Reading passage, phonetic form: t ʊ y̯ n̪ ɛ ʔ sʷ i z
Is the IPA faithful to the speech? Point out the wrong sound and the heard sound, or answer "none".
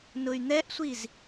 t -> n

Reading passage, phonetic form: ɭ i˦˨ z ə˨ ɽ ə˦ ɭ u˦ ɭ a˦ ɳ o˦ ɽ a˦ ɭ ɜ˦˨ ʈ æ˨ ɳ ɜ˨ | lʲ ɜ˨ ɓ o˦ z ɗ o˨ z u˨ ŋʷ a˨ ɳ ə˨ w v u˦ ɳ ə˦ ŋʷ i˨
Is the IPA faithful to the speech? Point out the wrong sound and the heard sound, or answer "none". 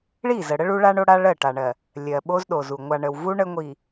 æ˨ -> a˨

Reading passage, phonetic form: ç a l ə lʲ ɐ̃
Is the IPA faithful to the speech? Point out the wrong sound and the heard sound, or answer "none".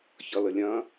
a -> ʌ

